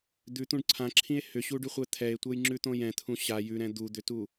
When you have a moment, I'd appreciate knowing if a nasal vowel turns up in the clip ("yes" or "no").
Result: yes